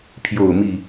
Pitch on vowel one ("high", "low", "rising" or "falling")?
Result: falling